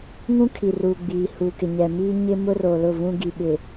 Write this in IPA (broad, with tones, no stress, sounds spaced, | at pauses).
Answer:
ŋ ũ˦ kʰ i˨ r u˨ ɡ͡b iː˨ h u˨ k ɪ˨ ɲ ɛ˨ m iː˦ ɲ ɪ˦ m ʊ˦ r o˨ l ʊ˦˨ v ũ˦ ɡ i˨ ɓ ɪ˨